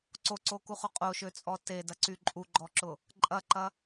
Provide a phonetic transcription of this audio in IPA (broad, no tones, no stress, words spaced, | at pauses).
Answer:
ǀoǀokuχʊ qʼoʃøt͡sʼɔ tedɐǀy ǃʼuɡ͡ǃɔǁʊ | ǃʼɐǃɐ